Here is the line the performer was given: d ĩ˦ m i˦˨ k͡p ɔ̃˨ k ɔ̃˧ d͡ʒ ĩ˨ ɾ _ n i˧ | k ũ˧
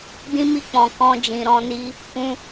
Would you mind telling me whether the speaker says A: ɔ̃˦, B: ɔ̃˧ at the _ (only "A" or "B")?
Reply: B